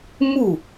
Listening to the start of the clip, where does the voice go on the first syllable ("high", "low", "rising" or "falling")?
falling